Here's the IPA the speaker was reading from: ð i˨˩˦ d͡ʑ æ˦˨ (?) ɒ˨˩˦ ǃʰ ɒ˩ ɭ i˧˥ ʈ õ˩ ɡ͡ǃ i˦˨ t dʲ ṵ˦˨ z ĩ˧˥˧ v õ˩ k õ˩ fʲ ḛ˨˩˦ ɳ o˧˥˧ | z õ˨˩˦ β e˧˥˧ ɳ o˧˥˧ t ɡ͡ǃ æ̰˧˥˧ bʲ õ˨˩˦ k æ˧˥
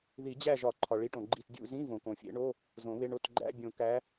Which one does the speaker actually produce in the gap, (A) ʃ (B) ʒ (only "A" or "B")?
B